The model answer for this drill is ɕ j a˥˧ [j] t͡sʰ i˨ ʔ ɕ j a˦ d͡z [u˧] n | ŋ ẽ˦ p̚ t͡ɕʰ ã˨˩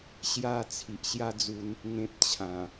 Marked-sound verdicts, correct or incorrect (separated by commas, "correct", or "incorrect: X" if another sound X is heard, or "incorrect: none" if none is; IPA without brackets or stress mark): incorrect: none, correct